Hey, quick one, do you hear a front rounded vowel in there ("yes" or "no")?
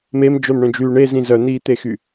yes